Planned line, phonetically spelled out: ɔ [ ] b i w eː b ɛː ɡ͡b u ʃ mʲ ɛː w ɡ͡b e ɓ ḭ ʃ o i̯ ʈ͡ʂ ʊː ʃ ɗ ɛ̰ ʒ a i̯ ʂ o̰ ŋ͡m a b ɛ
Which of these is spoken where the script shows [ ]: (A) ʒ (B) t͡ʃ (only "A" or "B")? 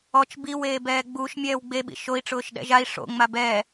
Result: B